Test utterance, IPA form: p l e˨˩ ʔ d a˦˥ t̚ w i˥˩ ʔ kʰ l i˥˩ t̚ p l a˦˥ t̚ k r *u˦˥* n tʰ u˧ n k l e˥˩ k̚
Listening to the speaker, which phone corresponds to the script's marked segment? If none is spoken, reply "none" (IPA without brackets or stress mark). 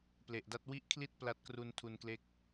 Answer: u˧